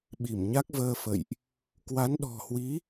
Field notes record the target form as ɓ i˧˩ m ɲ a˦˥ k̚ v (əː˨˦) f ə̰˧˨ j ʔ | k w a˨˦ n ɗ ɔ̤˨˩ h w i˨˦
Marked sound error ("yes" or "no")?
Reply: yes